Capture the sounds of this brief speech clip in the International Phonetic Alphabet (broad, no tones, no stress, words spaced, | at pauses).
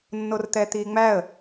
nːort̪ɛt̪iːŋ͡mæə̯